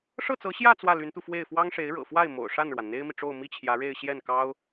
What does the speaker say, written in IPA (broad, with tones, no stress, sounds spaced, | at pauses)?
ʂ ɤ˥˩ t͡s ɤ˧˥ ɕ j ä˥˧ t͡s w ä˥˩ l y˧˥ n t̪ u˧ f w e˥˩ ɪ̯ f w ɑ˥ ŋ ʂ e˧˥ ɪ̯ ɻ ɤ̰˨˩ f w a˥˩ ɪ̯ m o̰˨˩ ʊ̯ ʂ a˥˩ n ɻ w a˩ n n̪ e˥ ɪ̯ m i˨ ʈ͡ʂ o˥˧ ʊ̯ m i˥˩ t͡ɕʰ j ä˧˥ ɻ e˥˧ ɪ̯ ɕ j ɛ˥˩ n k ɑ˥ ʊ̯